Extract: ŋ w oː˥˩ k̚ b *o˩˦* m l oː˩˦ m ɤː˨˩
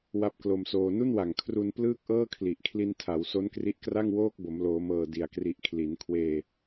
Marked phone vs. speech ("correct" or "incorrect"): correct